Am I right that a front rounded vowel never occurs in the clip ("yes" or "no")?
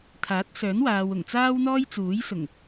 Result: no